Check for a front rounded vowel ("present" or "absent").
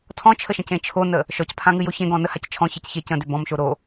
present